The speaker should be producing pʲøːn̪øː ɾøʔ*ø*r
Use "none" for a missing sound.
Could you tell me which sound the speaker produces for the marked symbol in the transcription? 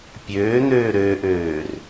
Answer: øː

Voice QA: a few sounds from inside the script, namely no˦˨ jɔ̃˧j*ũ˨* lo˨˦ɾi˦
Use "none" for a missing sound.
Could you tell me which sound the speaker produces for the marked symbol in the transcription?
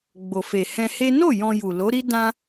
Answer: u˨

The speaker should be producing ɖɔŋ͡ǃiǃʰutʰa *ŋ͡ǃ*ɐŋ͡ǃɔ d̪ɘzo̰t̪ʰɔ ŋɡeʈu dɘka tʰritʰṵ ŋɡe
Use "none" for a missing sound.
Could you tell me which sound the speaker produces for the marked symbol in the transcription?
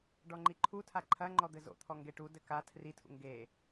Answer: ǃʰ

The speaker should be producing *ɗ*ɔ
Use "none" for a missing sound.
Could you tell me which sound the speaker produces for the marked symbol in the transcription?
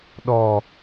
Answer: ɗ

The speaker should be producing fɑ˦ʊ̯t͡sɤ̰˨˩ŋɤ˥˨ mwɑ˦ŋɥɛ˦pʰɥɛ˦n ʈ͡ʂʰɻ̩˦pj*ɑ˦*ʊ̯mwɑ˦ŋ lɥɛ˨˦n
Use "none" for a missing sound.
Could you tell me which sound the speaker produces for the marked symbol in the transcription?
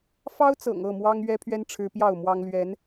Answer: ɑ˥˨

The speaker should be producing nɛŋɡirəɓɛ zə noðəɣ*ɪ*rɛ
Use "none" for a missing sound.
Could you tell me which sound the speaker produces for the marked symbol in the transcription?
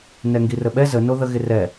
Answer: ɪ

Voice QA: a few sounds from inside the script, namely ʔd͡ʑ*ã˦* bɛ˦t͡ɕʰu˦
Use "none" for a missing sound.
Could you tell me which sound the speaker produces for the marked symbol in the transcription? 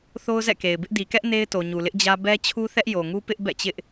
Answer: ä˦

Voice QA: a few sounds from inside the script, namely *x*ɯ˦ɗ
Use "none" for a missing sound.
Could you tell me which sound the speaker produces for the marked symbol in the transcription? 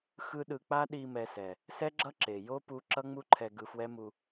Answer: x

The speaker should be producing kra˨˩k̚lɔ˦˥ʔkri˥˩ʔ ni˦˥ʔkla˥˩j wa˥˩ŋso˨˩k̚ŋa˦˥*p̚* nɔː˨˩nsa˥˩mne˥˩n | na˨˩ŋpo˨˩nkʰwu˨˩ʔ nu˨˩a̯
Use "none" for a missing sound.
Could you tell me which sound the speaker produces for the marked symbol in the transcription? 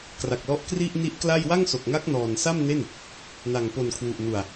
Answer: k̚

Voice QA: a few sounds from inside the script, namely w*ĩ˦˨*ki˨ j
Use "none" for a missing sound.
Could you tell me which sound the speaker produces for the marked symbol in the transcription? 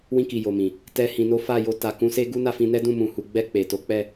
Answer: ĩ˧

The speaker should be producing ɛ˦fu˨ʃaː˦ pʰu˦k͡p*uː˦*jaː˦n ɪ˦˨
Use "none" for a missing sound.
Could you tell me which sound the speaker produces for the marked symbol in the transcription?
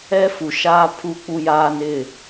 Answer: u˦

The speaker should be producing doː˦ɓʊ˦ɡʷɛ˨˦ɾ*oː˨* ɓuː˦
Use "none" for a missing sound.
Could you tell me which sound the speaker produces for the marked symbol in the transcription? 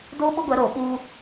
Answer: oː˨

